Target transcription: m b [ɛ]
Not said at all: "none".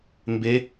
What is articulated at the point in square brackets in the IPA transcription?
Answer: e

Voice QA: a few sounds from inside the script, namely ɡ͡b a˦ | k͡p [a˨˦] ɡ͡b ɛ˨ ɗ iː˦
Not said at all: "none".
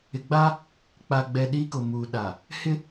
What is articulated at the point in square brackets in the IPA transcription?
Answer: a˨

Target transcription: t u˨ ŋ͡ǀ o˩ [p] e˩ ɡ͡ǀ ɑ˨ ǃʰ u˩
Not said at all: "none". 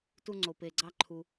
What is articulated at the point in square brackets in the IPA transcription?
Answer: p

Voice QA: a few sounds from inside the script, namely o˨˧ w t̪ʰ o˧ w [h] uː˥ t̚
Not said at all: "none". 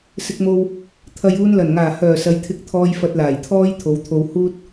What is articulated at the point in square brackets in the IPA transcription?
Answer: h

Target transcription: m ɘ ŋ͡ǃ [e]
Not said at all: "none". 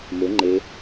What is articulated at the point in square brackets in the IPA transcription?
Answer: e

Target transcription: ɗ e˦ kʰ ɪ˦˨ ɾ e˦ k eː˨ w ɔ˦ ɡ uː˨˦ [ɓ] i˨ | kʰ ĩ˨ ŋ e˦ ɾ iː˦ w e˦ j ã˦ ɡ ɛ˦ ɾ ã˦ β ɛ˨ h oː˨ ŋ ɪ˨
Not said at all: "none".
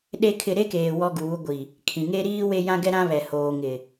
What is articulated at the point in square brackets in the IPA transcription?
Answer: ɡʷ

